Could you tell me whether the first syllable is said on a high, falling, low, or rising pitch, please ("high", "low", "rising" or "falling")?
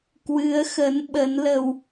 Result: rising